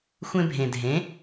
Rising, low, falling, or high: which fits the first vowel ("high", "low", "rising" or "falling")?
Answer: high